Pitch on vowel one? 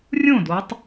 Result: falling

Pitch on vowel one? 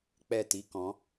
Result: falling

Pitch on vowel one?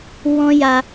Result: high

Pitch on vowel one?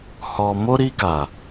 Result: low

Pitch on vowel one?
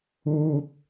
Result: high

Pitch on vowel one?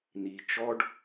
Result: low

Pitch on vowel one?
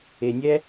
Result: low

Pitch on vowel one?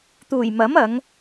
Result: low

